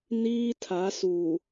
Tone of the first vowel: high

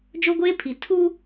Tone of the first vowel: high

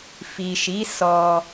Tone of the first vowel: low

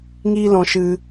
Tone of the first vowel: high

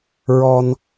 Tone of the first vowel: high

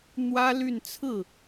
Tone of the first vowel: high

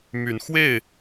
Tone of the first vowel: rising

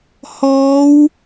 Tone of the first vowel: rising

